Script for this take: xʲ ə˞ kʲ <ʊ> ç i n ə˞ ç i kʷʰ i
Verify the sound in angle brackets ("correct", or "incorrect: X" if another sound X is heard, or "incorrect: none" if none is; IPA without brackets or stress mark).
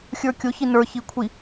correct